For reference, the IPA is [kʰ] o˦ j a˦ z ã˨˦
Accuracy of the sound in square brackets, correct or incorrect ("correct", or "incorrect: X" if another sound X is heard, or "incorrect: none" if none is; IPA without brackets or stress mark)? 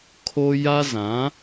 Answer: correct